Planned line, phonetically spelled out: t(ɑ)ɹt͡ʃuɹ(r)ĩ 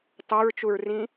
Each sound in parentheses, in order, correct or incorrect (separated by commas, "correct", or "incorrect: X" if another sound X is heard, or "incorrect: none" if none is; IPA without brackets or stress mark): correct, correct